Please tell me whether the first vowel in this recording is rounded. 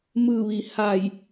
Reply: no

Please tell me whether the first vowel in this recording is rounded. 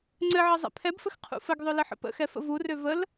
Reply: no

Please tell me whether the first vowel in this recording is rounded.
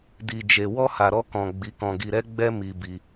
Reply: no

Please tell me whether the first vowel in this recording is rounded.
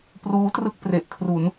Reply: yes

